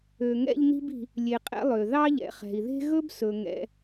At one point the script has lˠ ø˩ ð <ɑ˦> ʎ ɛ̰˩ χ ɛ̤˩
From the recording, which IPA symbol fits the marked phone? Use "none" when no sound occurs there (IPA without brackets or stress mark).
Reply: ɑ˥